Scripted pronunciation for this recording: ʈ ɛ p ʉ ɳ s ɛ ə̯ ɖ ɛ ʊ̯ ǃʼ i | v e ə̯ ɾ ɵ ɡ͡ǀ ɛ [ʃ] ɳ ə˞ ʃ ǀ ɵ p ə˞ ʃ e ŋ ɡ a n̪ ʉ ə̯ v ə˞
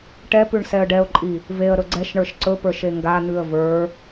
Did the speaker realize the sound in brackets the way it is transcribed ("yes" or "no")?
yes